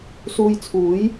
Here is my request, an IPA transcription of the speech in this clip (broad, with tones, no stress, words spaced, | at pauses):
suː˧jt͡sʰuː˨˥j